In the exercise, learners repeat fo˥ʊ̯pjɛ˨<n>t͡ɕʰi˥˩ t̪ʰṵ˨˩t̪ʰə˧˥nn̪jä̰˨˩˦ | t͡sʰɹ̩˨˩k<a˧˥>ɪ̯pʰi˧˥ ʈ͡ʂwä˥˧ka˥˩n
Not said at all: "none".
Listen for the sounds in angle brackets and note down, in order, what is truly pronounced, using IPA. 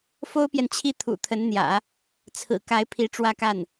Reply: n, a˧˥

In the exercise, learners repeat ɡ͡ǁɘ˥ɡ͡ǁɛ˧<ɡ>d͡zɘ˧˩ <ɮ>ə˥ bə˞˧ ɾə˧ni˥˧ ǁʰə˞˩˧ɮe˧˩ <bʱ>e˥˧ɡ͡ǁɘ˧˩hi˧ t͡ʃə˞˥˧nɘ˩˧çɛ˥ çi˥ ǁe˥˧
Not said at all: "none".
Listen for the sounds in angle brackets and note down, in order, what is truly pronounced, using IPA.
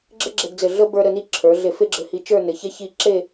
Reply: ɡ, ɮ, f

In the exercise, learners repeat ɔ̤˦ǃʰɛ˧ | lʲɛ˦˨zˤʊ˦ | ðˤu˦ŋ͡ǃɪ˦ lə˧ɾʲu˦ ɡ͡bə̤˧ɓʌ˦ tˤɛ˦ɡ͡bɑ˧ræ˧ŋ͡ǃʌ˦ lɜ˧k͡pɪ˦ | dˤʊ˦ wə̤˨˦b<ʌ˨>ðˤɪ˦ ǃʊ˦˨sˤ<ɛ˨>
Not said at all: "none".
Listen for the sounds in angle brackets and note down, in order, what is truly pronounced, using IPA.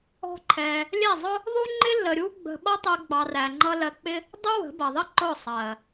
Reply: ʌ˨, ɜ˨

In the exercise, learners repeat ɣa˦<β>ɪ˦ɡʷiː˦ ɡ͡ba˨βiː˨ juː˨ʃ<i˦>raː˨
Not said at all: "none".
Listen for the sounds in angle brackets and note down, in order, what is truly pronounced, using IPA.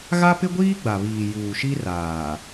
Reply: p, i˦

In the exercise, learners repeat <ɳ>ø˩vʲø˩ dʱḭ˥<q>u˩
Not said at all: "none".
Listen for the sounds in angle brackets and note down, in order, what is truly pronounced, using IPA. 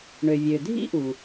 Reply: ɳ, ʔ

